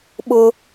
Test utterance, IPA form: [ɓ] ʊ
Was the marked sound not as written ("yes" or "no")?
no